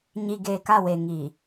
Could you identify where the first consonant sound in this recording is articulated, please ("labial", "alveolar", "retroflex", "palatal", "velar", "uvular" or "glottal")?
palatal